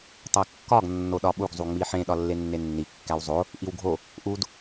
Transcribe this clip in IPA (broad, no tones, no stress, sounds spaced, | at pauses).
tˤ æ kː ɒ ɡ nː o ɗ ɒ ɓ u ɡ zˤ u ŋ͡m i ħ ẽ ɗ ɒ lː e nː e nː i kː æ w zˤ o | ʔ i w ɡʱ o | ʔ u d